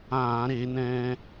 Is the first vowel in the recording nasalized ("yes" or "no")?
yes